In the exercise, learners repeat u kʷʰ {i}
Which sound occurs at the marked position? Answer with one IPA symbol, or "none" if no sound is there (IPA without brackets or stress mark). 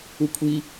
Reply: i